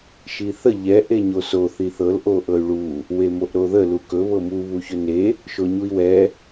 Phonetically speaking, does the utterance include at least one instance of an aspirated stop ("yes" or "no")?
no